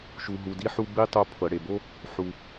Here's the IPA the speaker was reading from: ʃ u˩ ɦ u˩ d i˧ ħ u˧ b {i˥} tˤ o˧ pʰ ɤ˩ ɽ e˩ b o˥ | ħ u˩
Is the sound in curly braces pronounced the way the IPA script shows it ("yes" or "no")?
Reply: yes